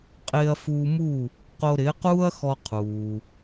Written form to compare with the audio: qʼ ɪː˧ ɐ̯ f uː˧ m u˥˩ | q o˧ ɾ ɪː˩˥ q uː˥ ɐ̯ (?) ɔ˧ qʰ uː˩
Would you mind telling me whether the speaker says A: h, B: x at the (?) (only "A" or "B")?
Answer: B